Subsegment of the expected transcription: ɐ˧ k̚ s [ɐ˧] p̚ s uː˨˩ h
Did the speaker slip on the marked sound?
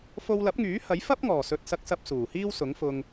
no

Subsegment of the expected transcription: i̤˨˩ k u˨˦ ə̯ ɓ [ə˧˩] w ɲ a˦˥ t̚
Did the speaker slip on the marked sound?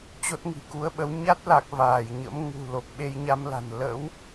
yes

